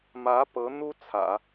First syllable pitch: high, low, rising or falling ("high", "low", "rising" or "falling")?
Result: rising